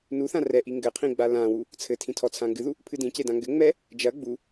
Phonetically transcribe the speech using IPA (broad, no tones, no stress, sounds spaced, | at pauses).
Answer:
n u θ ã r ɛ ʔ i ŋ ɡ ɘ qʰ ĩ ɡ͡b a l ã w u | t͡sʰ ɘ tʰ ĩ tʰ ɔ t͡sʰ ã ŋ ɡ ɨ ð u | pʰ ɨ d ĩ c e d ã ŋ ɡ ɘ ŋ͡m ɛ | d͡ʒ ɐ ɡ͡b u